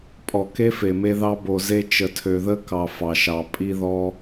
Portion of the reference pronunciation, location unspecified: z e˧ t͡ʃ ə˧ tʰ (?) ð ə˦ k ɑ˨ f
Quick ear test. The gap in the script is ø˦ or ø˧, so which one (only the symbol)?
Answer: ø˧